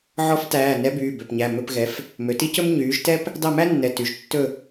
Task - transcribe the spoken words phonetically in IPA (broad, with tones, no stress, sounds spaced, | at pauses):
ʕ ɔ˧˥ f t æː˩˧˩ n ɛ˧˥ b yː˩˧˩ b ø˩˧˩ p ɲ æ˩˧˩ m ɵ˦˨ p ɣ ɛ˩˥ f | m ø˩˧ t i˥ c ɵ˥ m ɲ yː˩˥ ʒ t ɛ˥ p | d ɑ˦˨ m æ˥ nː ɛ˩˧˩ t y˩˥ ʒ tː ɵ˦˨